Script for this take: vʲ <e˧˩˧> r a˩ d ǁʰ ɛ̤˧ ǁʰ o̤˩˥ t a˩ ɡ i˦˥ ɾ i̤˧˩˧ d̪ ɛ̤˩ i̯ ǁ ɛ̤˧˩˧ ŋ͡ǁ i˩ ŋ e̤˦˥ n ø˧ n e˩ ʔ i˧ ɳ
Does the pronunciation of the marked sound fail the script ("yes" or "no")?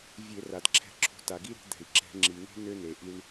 no